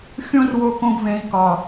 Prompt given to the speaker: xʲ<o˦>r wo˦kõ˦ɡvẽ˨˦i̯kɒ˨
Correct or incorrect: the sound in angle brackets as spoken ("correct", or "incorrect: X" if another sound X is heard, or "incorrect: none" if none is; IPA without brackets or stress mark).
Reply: incorrect: õ˦